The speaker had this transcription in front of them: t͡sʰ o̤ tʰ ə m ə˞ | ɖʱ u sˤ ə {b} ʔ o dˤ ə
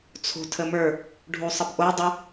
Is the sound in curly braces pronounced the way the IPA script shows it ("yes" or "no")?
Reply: yes